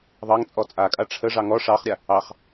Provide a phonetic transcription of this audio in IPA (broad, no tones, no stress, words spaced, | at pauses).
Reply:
ðˤɑŋt͡sʼɔ t͡sʼakʼa ʈ͡ʂʰəʐɑ ŋɔ ʂɑχɾʲa | ɑχ